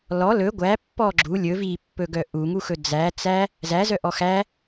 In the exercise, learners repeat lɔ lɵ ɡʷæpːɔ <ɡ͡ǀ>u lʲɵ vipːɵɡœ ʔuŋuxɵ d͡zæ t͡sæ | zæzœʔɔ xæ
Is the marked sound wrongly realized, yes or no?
yes